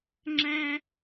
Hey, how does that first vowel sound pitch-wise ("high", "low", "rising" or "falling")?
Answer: high